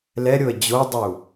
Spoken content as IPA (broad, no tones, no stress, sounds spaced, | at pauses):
l ɛ ɾʲ o ə̯ d͡ʑ o dˤ u